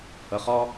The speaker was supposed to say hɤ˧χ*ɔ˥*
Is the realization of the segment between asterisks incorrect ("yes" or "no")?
no